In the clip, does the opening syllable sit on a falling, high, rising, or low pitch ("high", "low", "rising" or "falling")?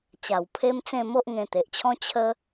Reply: low